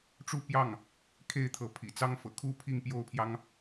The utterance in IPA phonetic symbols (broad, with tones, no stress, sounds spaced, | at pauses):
ʈ͡ʂ u˥˧ p j ɑ˥˩ ŋ | kʰ e˥˩ ɪ̯ t̪ʰ ɤ˧˥ pʰ ḭ˨˩ t͡s ɑ˥ ŋ f ɤ̰˨˩ kʰ u˥ pʰ i˥˩ ŋ p j o˥ ʊ̯ pʰ j ɑ˥ ŋ